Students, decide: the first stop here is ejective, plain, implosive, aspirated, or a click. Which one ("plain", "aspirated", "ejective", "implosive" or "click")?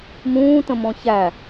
plain